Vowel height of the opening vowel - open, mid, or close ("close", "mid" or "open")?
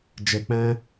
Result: mid